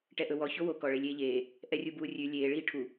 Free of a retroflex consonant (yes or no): no